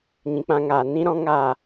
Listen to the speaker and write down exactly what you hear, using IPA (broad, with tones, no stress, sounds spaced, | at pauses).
ɲ ĩ˨ k͡p ã˧ ŋ aː˨ n ĩ˦ ɾ ɔ̃˦ ŋ aː˦˨